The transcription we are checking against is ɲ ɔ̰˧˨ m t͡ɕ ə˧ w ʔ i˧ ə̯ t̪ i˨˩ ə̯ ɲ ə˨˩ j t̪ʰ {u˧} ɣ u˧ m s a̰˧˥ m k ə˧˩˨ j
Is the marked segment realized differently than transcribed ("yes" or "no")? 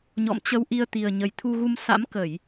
no